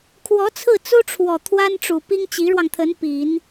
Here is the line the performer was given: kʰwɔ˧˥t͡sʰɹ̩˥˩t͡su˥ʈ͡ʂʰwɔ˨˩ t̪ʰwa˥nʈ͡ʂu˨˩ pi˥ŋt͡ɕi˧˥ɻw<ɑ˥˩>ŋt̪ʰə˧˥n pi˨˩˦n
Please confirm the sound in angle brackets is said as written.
no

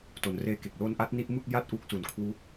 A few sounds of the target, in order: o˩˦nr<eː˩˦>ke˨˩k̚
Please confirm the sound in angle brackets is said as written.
no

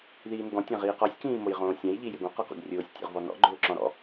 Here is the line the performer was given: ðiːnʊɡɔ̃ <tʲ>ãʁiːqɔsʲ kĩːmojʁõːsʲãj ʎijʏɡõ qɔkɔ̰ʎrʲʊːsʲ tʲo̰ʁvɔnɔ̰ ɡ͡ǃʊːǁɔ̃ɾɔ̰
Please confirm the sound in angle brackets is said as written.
yes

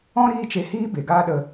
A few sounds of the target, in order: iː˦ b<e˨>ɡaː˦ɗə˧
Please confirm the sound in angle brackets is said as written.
yes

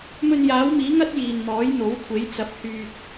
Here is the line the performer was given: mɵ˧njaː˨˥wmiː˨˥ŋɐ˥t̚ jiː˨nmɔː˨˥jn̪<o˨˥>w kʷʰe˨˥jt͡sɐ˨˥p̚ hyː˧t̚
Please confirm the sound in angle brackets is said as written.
yes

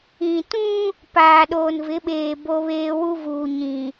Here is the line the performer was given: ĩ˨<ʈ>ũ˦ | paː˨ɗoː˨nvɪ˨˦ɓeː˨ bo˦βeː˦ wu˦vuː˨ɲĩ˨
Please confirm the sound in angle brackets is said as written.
no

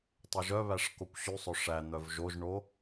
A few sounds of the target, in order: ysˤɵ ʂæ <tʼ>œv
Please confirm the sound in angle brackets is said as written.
no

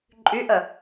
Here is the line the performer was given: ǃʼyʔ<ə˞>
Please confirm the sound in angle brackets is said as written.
no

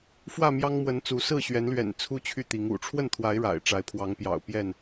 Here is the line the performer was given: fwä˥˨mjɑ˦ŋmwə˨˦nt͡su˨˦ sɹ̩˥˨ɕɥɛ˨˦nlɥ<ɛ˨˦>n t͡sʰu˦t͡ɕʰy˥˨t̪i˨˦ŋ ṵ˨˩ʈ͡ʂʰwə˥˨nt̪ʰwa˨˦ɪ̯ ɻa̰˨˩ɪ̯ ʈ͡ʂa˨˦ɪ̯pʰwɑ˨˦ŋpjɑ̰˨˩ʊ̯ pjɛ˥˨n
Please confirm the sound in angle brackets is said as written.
no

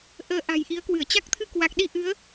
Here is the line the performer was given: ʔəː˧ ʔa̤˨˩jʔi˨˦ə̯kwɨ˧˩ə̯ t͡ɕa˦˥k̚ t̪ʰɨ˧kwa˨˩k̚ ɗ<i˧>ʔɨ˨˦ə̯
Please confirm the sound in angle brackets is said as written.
yes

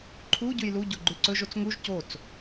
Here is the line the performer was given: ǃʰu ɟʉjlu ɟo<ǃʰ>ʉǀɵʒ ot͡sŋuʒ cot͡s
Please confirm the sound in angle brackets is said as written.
no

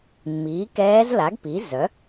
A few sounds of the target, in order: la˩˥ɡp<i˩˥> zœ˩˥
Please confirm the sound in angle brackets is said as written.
yes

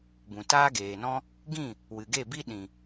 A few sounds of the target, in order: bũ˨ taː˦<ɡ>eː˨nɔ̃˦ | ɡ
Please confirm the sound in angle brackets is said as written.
yes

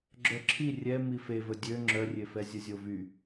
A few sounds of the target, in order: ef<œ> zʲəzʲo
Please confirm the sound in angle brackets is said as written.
no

